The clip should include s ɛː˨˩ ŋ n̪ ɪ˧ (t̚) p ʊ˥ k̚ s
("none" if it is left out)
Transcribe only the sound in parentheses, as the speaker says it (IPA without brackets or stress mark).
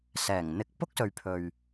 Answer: k̚